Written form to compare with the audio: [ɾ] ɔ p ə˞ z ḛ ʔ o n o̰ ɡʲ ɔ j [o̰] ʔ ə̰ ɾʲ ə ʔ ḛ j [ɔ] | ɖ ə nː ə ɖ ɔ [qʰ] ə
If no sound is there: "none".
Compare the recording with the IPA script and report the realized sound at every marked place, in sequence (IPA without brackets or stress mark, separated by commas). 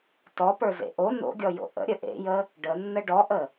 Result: t, o̰, ə, ʔ